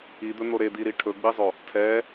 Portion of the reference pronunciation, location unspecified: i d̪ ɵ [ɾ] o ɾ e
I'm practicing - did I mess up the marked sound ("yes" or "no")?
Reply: yes